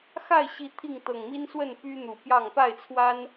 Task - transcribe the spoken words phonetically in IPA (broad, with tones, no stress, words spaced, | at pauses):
xa˥˨ɪ̯ɕi˨˦ t̪ʰi˥˨ŋt̪ɤ˨˩ŋ mi˦nswə˥˨n py˦n̪u˨˩pjɑ˥˨ŋ pa˥˨ɪ̯t͡sʰwa˦n